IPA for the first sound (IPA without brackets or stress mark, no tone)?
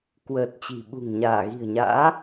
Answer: k